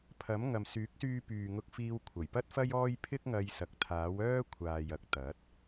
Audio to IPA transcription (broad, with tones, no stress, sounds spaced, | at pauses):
pʰ ɐ˨˥ m ŋ ɐ˨ m s yː˨˥ k̚ s yː˧ p yː˨ ŋ ʊ˧ k̚ f iː˧ w kʷʰ ɐ˨˩ j p ɐ˥ t̚ f ɐ˥ j ɔː˥ j pʰ ɪ˥ k̚ ŋ ɐ˧ j s ɐ˨ k̚ t̪ʰ aː˨˥ w œː˥ kʷʰ aː˨ j ɐ˧ k̚ t̪ ɐ˨˥ t̚